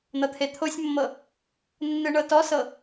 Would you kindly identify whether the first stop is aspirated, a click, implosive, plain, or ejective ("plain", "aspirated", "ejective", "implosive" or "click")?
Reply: aspirated